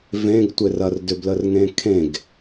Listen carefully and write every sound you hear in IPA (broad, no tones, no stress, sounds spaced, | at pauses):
v ẽ ɡ tʷ ɪ r ɐ r d ʏ b l ə r ŋ ẽ kʰ ẽ ɡ